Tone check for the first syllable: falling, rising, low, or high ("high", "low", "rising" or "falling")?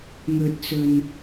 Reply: low